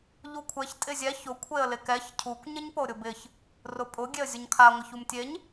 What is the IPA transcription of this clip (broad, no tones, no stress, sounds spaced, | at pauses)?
ʎ u kʷʰ ɛ ç tʼ ɪ zʲ ɛ ç ʊ kʷʰ e ə̯ l ɪ k ɛ ç cʰ u kʷ ɲ ɪ ɲ p o ɾʲ ʊ b ɪ ç | r ʊ pʼ ʊ ɡʲ e ə̯ zʲ ʊ ɲ kʰ a ŋʷ ɪ ç u m tʲ e ɲ